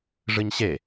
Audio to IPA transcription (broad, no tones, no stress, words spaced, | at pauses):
ʐɨɲɕe